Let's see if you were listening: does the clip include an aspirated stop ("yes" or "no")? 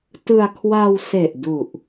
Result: yes